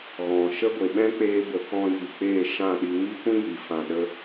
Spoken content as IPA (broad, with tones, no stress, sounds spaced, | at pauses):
ɣ ɔ̃˨ ʃ ə˦ ɡʷ e˨ ɓ ɛ̃˦ k͡p eː˧ b ə˨ k ɔ̃˦ j i˨ k͡p eː˦˨ ʃ ã˦˨ ɗ i˧ ŋ i˦ kʷ ĩ˦ j i˨ f ã˨ ɗ ə˧